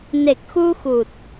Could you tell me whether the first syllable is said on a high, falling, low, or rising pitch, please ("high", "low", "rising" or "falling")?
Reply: low